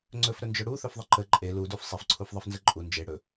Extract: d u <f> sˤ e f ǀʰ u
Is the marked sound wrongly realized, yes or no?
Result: no